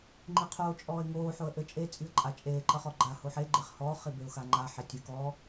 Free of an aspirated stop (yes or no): no